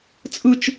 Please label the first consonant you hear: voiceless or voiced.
voiceless